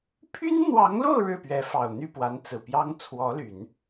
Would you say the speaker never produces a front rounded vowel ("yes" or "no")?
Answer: no